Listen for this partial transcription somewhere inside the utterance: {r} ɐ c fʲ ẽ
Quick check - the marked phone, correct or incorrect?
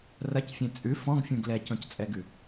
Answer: correct